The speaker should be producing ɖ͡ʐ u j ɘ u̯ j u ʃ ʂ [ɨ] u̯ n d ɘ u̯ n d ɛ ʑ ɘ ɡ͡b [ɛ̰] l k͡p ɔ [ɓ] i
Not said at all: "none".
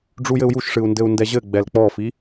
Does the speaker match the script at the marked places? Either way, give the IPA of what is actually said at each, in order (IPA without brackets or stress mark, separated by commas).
ɨ, ɛ, f